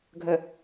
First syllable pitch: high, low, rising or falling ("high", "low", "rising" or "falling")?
low